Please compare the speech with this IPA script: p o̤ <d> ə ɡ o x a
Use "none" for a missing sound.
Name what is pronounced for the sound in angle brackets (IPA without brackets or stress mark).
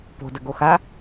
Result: d